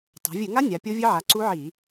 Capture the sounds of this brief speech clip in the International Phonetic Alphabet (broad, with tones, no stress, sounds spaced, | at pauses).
tˤ a̤˩˧ vʲ ɨ˧˩˧ ŋ a˦˥ nʲ a˩˧ pʲ o˦˥ vʲ ɨ˦˥ ʕ a˩˧ ǀ u˦˥ ʕ i˧˩˧